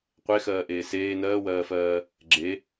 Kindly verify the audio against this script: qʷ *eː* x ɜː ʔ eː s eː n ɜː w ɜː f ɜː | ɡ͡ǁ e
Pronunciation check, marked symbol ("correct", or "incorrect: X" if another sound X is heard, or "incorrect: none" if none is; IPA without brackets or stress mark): incorrect: e